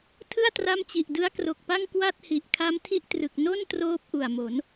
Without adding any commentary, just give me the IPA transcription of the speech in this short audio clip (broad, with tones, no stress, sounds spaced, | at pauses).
tʰ ɯ˥˩ a̯ t r a˦˥ m t͡ɕ i˨˩ ʔ d ɯ˦˥ a̯ k r o˨˩ k̚ p a˥˩ ŋ k w a˥˩ t̚ h i˨˩ ʔ kʰ a˦˥ m tʰ i˥˩ ʔ t r ɯ˨˩ k̚ n o˥˩ n t r oː˥˩ p̚ ʔ u˨˩ a̯ m o˩˦ n